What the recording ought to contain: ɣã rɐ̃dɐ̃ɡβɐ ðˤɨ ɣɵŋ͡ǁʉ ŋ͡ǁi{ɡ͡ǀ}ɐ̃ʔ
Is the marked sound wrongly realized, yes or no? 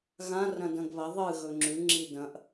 yes